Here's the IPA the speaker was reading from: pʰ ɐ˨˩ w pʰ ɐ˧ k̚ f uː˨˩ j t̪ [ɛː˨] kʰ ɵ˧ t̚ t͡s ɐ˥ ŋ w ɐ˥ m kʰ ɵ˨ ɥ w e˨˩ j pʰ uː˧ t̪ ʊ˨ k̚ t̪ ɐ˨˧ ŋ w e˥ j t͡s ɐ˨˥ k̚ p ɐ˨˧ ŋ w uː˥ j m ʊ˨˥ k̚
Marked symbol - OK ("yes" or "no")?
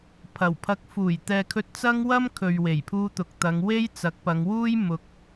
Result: yes